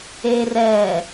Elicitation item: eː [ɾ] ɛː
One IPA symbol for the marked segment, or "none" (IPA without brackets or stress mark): r